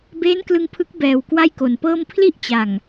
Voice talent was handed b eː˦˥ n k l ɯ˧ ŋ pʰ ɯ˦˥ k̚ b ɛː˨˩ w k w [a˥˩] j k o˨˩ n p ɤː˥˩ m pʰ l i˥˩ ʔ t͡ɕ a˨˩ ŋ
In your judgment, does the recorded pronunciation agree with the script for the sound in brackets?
yes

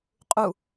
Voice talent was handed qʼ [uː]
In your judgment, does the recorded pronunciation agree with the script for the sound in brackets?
no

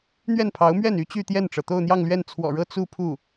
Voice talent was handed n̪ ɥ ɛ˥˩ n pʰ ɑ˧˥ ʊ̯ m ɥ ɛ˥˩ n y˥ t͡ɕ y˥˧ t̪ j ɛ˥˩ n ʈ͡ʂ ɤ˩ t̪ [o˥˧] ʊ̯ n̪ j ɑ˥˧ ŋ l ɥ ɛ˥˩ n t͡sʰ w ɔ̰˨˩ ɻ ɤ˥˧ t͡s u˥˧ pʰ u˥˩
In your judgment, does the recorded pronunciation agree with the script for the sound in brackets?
yes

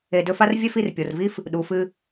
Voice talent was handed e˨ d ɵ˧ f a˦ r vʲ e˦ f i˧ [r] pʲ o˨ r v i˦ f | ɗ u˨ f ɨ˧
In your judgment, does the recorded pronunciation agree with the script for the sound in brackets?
yes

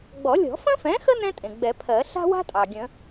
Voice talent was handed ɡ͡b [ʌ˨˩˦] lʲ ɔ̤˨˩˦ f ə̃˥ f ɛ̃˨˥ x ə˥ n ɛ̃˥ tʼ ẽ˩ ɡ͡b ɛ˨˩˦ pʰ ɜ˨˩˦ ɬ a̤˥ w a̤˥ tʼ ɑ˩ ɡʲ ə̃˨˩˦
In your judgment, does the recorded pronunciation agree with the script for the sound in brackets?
no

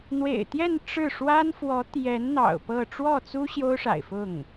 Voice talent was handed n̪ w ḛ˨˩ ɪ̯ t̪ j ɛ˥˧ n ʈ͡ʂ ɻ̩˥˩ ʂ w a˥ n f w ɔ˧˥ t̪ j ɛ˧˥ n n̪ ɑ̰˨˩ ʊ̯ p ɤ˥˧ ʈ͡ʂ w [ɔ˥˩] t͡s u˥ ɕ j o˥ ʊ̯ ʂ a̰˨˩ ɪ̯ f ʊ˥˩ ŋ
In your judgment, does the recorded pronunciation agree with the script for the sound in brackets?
yes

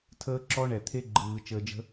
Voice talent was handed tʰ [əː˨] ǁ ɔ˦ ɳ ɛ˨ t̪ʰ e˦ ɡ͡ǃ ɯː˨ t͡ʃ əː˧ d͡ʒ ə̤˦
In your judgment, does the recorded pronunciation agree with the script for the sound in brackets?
no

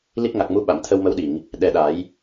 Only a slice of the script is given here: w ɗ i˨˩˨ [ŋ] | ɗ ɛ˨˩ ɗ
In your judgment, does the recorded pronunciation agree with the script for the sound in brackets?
yes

